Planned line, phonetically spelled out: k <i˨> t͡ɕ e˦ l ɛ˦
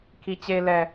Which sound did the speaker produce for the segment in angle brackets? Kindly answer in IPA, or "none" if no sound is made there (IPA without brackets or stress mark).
i˦